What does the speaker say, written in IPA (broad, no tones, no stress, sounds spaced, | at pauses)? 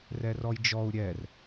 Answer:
r ɛ r ɔ j d͡ʒ ɔ u̯ ɾʲ ɛ r